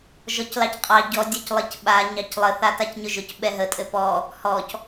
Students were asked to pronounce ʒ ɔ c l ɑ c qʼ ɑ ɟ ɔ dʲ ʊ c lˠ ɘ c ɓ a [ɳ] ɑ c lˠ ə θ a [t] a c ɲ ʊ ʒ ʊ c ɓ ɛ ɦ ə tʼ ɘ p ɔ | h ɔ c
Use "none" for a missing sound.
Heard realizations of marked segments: ɲ, t

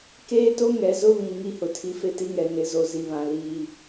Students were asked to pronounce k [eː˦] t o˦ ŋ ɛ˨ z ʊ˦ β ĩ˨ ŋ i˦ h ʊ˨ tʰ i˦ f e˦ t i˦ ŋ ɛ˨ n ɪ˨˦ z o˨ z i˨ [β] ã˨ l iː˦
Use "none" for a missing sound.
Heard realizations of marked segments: eː˦, β

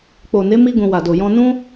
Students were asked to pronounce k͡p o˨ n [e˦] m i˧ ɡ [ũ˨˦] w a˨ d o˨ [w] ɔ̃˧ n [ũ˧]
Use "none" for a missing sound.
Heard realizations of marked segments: e˨˦, ũ˨, j, ũ˦

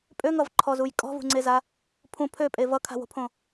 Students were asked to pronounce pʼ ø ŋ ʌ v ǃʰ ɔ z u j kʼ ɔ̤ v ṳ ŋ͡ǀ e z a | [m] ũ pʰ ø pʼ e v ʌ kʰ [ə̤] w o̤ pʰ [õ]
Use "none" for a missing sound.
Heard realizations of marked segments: pʰ, a̤, õ

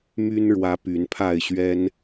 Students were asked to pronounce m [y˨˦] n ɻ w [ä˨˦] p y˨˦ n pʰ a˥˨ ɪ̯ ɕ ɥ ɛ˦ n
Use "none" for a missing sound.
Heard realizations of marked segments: y˦, ä˨˦

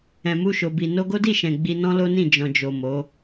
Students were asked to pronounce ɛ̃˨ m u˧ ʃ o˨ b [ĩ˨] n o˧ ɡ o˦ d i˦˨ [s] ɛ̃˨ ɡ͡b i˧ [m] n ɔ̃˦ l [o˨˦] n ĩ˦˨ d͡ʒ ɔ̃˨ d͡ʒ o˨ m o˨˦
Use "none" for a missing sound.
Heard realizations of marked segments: i˨, ʃ, none, o˦

